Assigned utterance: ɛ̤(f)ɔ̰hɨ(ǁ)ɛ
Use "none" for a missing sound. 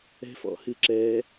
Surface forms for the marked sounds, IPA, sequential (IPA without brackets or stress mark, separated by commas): f, ǁ